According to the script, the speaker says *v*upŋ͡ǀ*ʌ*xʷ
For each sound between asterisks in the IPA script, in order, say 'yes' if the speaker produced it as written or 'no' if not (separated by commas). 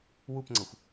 no, yes